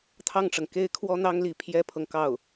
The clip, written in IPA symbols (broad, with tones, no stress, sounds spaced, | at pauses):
t̪ʰ ɑ˥˩ ŋ ʈ͡ʂ ɤ˩ ŋ k e˥ ɪ̯ kʰ w ɔ˥ n̪ ɑ˥ ŋ l i˧˥ pʰ j ɛ˥ pʰ ɤ˨ ŋ k ɑ˥˩ ʊ̯